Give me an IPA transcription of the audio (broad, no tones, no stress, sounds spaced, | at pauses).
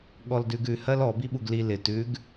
ɠ ɔ l d ʉ ɡ ʉ h ɜ l ɔ b i ɓ u ɡ l i l ɪ t ʉ ɡ